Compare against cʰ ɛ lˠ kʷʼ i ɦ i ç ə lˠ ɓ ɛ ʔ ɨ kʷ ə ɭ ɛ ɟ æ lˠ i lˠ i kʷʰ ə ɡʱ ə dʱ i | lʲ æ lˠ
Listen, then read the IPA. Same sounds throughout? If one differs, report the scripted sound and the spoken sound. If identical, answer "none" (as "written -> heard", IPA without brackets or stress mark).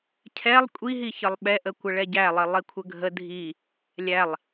ɨ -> ə